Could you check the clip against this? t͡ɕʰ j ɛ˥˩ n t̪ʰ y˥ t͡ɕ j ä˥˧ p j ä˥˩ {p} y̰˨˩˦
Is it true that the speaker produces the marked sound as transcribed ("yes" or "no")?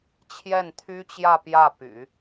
yes